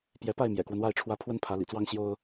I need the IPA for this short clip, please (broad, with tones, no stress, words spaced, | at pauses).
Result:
pjɛ˨˦pa˥˨ɪ̯ mjɛ̰˨˩kwə˦nwa˥˨ɪ̯ʈ͡ʂʰwä˦ pʰwə˦npʰä˨˦lḭ˨˩t͡swɑ˦ŋ ɕjo˦ʊ̯